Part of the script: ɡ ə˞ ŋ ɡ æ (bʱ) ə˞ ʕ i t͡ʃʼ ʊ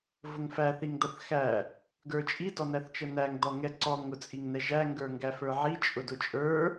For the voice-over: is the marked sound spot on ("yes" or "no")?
no